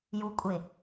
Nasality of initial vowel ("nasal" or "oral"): oral